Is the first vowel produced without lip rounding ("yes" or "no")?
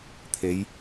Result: yes